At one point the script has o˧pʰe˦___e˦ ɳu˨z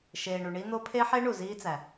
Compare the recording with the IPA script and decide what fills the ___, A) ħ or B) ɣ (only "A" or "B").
A